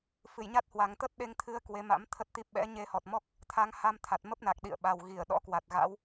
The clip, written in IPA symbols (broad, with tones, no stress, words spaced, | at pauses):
fɨ˧˩jɲa˦˥t̚hwa˨˩ŋ t̪ə˦˥t̚ɗe˧ŋt̪ʰɨ˧ə̯ kwe˨˦ma̰˧˥m t̪ʰə˦˥t̚t̪i˦˥p̚ ɓɛ̰˧˥ɲe˧ hɔ˨˩t̚mɔ˦˥k̚ | t̪ʰa˨˦ŋha˧mt̪ʰa˨˩t̚ mə˦˥p̚na˨˩k̚ ɗḭ˧˨ə̯ɓa˨˩w ɣi˧˩ə̯ɗɔ̰˧˥kwa˨˩t̚ɣa̰˧˥w